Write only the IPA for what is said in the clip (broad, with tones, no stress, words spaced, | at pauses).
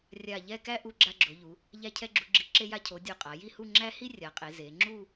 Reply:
rʲa˧˩ʎɛ˥˧kæ˥ ʔu˧ɡ͡ǁa˧ɡ͡ǁo˩˧ʎu˩˧ | ʎæ˧cʰɛ˧ɡ͡ǁu˩˧ɡ͡ǁi˩˧ ǁe˧ja˧cʰo˩˧ dʲo˧˩qʼa˩˧ji˥˧hu˥˧ ŋ͡ǁæ˥ hi˥rʲa˩˧qʼe˩˧ ze˩˧ ŋ͡ǁu˥˧